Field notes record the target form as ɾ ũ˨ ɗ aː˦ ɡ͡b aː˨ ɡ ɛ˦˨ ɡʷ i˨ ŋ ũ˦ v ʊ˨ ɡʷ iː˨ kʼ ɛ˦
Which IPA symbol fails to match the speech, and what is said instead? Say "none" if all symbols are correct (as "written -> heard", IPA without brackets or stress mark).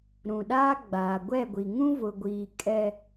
ɡ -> ɡʷ